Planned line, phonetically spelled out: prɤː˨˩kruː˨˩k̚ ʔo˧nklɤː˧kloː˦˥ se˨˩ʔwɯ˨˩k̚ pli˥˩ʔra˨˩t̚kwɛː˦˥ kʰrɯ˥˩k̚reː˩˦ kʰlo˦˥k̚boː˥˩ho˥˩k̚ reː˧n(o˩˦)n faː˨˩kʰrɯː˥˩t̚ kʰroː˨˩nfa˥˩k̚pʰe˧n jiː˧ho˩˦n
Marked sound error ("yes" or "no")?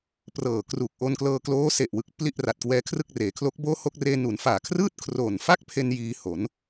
yes